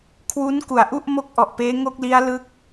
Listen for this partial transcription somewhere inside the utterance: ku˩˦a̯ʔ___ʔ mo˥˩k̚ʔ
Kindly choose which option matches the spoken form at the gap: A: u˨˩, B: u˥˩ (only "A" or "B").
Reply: B